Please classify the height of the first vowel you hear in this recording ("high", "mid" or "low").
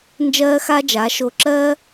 mid